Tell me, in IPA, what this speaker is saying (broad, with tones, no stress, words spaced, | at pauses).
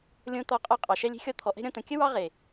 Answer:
lʲõ˧t̪ɔ˧ qʼɒ˦˨qʼɑ˨ ʃɛ˧lʲe̤˧xʲɔ˧ t̪ʰɔ˨ʔɛ̤˦ɾʲɔ̃˧ t̪ə̃˨kʲə˦ wɑ˦ʁe˨